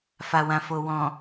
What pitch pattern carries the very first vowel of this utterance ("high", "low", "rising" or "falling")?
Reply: low